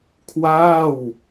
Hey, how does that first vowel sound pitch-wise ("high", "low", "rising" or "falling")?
falling